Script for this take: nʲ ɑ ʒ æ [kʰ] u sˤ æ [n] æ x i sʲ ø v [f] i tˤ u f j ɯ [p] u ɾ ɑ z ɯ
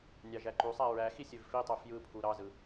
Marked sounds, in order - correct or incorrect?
incorrect, incorrect, correct, incorrect

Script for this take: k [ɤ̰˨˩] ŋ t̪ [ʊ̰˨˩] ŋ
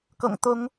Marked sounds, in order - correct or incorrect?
correct, incorrect

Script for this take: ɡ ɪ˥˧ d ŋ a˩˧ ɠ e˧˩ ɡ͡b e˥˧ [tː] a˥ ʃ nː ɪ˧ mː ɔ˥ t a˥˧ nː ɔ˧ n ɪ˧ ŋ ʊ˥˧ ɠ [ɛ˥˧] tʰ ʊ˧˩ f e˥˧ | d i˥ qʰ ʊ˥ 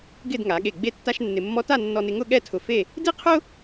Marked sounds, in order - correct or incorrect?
correct, correct

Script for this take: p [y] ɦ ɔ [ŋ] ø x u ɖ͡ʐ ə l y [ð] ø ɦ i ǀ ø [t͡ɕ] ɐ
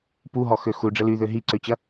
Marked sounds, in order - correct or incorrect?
incorrect, incorrect, correct, correct

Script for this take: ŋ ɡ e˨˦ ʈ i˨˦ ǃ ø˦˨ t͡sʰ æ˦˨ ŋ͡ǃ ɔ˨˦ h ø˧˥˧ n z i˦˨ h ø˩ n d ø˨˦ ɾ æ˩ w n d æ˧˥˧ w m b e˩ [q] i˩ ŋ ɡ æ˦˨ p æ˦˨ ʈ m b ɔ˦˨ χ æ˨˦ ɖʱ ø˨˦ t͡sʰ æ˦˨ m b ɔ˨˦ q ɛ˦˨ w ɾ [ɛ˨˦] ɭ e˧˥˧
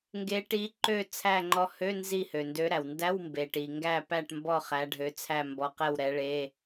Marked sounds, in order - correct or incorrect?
incorrect, correct

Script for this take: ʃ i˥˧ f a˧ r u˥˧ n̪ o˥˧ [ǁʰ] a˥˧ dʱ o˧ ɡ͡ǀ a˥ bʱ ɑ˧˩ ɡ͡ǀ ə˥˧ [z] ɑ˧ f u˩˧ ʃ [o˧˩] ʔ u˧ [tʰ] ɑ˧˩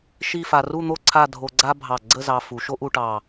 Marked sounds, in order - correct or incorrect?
incorrect, correct, incorrect, incorrect

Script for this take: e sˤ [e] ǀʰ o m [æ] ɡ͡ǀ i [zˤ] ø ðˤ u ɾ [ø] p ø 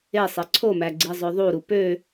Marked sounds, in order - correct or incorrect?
correct, correct, correct, incorrect

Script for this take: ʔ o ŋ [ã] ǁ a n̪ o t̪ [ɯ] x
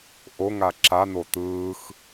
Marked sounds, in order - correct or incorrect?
incorrect, incorrect

